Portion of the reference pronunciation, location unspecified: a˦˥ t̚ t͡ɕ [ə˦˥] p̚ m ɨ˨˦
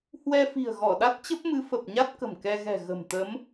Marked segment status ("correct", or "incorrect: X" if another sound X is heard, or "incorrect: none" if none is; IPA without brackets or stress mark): correct